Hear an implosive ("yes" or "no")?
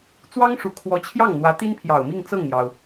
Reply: no